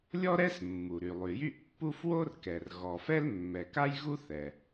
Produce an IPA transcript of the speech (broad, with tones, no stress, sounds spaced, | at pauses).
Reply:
lʲ ɔ˥ ɾ ɛ˥ s mː u˩ ɾ y˩ lˠ y˩ j y˥ ʔ pː u˥ f w o˥ r k ɛ˩ r ɣ ɔ˩ f ɛ˥ l mː ɛ˩ k a˥ j ɣ u˥ θ ɛ˩